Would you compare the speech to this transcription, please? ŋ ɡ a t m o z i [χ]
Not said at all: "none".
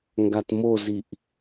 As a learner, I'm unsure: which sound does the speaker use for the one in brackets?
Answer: ʔ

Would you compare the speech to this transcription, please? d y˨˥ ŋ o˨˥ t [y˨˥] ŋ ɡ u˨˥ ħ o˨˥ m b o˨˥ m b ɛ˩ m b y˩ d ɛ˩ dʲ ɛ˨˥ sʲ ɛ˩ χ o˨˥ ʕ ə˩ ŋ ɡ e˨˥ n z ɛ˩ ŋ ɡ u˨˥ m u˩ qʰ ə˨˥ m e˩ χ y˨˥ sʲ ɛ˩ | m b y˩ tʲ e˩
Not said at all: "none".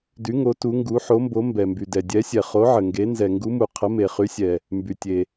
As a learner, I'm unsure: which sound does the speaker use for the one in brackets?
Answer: u˨˥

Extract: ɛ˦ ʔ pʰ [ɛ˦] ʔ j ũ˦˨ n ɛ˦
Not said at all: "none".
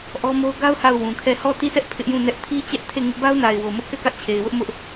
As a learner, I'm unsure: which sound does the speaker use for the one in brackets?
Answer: ɪ˦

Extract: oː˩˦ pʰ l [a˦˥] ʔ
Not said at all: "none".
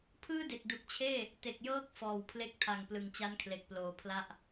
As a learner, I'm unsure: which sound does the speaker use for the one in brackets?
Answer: a˥˩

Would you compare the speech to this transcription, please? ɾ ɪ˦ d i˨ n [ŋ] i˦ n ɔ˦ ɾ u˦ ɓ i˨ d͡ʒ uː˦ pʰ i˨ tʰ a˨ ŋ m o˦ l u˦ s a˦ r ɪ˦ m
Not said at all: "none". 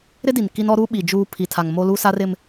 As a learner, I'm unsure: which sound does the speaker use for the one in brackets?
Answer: k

